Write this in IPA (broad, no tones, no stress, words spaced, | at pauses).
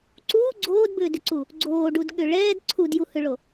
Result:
ǀuː ɡ͡ǀoːdbʏːdʏǀu | ɡ͡ǀoːɖudɠʏ ɭɛːd ǀʰudjuhʏɭo